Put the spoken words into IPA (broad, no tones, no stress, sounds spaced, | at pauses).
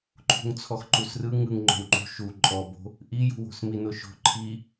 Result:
ǃʰ ṳ ŋ t͡sʰ ɔ x ǃ u s r ɯ ŋ ɯ ŋ ŋ͡ǃ o̤ w ŋ͡ǃ ṳ ʃ u ǃʼ ɔ b o̤ | ʔ i j ṳ w o̤ s m i n o ʃ o̤ ǃʰ i